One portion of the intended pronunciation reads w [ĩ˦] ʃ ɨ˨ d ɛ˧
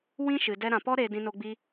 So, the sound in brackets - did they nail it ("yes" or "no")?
yes